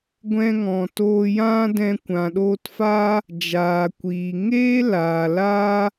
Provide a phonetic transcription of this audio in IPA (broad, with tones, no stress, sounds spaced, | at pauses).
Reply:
ɡʷ ɛ̃˧ ŋ ɔ̃˨ t oː˧ j ã˦ d ɛ̃˧ kʷ ã˨ ɗ oː˧ t f aː˦ | d͡ʒ aː˨ kʷ iː˨ ŋ eː˦ l aː˨ l aː˦